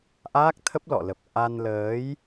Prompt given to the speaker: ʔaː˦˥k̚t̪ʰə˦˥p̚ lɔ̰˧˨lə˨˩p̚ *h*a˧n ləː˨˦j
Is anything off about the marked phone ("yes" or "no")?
yes